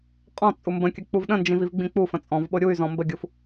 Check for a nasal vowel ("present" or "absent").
present